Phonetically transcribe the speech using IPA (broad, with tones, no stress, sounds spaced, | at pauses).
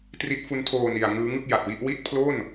t r i˦˥ t̚ f u˦˥ n tʰ oː˧ n i˨˩ a̯ ŋ ɯː˦˥ ŋ ɯ˥˩ k̚ j a˨˩ t̚ w i˦˥ ʔ w i˥˩ t̚ pʰ l o˥˩ n